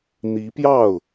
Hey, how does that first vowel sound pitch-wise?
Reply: rising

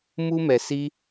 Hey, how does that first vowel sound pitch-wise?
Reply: high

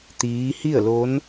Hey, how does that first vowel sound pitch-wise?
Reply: rising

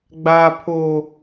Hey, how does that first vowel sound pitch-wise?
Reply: high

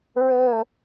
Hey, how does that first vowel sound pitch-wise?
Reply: falling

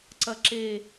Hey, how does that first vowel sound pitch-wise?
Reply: low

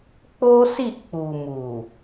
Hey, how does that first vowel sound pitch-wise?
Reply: high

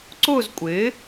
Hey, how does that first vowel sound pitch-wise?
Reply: falling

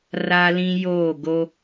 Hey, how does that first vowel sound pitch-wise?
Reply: high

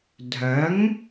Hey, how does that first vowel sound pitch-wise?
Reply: rising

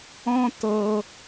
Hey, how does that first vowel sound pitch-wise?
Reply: high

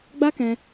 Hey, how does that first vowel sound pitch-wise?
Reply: high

